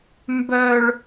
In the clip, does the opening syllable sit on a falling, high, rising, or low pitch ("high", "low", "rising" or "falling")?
high